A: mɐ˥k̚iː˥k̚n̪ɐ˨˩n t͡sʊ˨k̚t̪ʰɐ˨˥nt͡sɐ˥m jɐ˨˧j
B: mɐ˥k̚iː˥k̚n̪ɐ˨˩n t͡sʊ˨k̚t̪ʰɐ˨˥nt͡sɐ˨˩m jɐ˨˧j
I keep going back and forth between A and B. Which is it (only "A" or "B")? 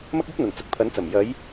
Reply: B